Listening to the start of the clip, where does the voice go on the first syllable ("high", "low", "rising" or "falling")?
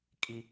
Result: high